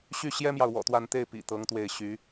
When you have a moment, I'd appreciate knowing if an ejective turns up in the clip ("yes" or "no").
no